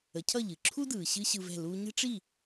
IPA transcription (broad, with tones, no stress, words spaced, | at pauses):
ə˩˥cʰʌ˥˩ʎɨ˩ ǁʰu˥dɯː˩ ɕɨː˥ɕɯ˧vɛ̤˥˩ luː˧ɲə̤˥ʈ͡ʂi˥˩